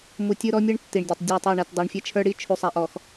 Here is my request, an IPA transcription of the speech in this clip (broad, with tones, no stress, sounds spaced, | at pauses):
m u˨ tʲ ɯ˦ ɾ ɔ˦ mʲ ɯ˦ ɳ tː i˨ ɳ dʲ e˨ tˤ dʲ a˦˨ tˤ ɤ˦˨ ɳ ɛ˨ t dˤ ɤ˨ ɳ fʲ ɛ˦ t͡ʃʰ ə˞˦ ɽ i˦ t͡ʃʰ u˨ sˤ a˨ ʔ ɔ˨ x